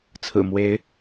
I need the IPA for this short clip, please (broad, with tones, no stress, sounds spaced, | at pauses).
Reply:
t͡sʰ ɹ̩˨˩ m w e˨˦ ɪ̯